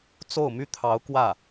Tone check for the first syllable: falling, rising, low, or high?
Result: falling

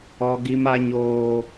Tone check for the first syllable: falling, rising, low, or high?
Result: high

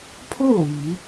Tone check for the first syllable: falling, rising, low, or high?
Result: falling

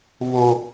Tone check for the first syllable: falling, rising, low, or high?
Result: high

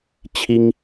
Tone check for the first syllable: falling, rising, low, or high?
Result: high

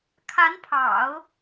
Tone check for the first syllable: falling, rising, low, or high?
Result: rising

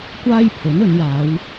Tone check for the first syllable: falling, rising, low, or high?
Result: high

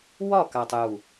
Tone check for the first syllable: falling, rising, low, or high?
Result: falling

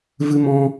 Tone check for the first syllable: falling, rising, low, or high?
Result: high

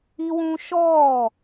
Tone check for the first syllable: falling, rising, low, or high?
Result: high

